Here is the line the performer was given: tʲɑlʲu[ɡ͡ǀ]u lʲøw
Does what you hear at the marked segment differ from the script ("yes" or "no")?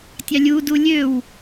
yes